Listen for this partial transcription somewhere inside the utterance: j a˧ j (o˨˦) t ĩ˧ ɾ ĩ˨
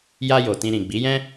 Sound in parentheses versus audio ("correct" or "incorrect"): incorrect